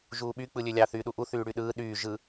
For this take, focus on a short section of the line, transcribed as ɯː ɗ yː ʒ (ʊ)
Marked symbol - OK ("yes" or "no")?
no